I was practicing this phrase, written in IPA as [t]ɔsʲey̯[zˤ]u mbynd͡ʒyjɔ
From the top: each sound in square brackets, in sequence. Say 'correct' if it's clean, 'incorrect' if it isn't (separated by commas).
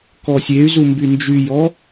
incorrect, incorrect